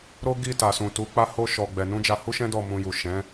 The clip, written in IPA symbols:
ɾ o˦ ɡ i˦˨ t a˨ s ũ˨ t u˨˦ k͡p a˦ h o˦ ʃ ɔ˧ ɡ͡b ɛ˧ n ũ˦ d͡ʒ a˧ h u˦ ʃ ɛ̃˦ d ɔ˦˨ m ũ˧ j u˨ ʃ ɛ̃˨˦

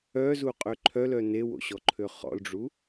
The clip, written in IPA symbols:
œ z u qʼ ø ǃʰ œ l œ n e w o̰ ɕ ɔ ǃʰ ø χ ɔ̰ l ɖ͡ʐ u

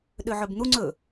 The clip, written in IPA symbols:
ɗ ø ʕ ɵ b n̪ u ŋ͡ǀ ɵ

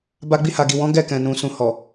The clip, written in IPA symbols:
b a˧ ɡ͡b i˧ h a˨ ɡ i˨ w ɔ̃˨˦ ɡ ɛ˦˨ k ɛ̃˨ n ũ˨ s ũ˨ h ɔ˨

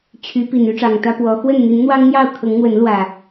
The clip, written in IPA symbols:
t͡ɕʰ y˨˦ p i˨˩ n y˦ ʈ͡ʂ ɑ˨˩ ŋ t̪ ä˦ p w ɔ˨˦ x w ə˥˨ n n̪ i˨˦ n n̪ w ɑ˦ ŋ n̪ j ɑ˥˨ ʊ̯ kʰ ɤ˨˦ ŋ n̪ w ə˨˦ n l w ä˨˩

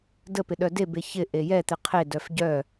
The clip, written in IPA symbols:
d ə p ɪ ɗ œ d e b e ç ɪ ʔ e j ɛ t̪ ɪ qʰ e d œ f ɟ œ

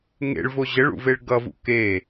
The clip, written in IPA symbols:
ŋ ḛ ɭ v o ʑ ə ɭ ṵ v e ɭ ɡ ʌ v ṵ k e

